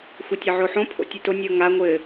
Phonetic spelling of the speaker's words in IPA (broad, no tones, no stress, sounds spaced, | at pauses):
xʷ ɘ tʲ ɘ ʕ o ħ õ pʰ o̰ tʲ ɘ t o nʲ ɤ ŋ a ŋʷ ɘ